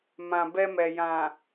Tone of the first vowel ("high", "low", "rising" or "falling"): low